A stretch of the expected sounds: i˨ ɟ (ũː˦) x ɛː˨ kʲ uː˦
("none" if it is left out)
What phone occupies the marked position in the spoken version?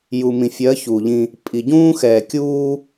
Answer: ũː˦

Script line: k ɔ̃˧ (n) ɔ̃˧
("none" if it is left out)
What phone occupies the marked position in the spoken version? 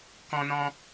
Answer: n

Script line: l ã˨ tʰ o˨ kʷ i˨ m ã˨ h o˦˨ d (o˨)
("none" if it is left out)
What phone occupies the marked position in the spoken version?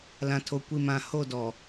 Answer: ɔ˨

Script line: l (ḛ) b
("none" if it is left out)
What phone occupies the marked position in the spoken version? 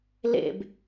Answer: ḛ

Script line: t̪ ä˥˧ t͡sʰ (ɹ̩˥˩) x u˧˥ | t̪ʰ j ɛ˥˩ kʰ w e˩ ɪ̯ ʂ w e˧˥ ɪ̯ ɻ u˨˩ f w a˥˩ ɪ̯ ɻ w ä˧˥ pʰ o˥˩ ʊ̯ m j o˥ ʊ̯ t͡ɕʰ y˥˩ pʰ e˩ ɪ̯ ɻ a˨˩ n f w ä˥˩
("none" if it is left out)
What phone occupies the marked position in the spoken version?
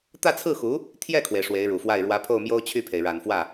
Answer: ɹ̩˥˩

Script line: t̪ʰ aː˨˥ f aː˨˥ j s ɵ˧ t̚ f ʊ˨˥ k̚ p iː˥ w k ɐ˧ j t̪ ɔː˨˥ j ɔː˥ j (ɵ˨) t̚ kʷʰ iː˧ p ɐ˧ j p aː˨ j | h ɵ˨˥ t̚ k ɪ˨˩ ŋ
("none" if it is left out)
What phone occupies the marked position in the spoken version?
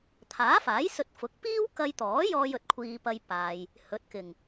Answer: ɵ˨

